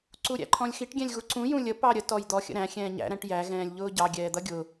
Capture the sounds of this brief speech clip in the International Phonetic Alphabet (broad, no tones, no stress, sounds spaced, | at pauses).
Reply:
ǀ u ɾʲ æ̰ ǃʰ ɔ̃ lʲ x i ʈ ɡʲ ɛ̃ lʲ ɣ u ǀ ũ j ũ lʲ ə p ɑ ɾʲ ə t ɔ j d̪ ɔ xʲ ə̰ ɾ æ̃ xʲ ɛ̃ː ɲ æ̰ ɾ æ̃ ʈ j æ ɣ ɛ̃ː lʲ ʎ ʊː ɟ ɑ ɡʲ ɛː d̪ ʌ ɡʲ ʊ